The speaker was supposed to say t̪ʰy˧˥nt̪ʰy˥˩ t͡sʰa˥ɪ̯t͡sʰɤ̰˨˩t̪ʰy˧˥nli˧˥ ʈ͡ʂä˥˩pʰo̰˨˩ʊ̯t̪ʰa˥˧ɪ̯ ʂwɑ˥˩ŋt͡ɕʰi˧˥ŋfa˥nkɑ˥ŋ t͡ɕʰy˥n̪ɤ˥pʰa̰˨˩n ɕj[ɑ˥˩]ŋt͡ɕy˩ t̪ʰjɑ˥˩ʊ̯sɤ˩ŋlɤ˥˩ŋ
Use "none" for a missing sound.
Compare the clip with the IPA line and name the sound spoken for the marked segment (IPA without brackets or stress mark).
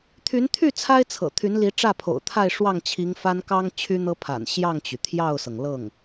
ɑ˥˩